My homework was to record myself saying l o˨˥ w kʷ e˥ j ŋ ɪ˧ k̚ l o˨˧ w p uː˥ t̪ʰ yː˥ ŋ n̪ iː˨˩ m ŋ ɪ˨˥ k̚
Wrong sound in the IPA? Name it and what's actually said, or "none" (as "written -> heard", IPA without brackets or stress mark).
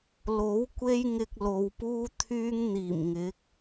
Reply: none